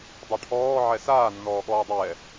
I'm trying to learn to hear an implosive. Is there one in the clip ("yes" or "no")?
yes